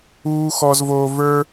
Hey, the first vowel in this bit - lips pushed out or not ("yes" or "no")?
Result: yes